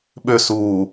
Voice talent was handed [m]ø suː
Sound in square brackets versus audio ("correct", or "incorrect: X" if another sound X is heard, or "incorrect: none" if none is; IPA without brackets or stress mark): incorrect: ɓ